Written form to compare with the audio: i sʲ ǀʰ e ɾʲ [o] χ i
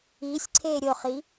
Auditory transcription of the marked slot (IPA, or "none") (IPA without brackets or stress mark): o